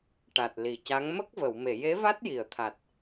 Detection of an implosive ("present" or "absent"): absent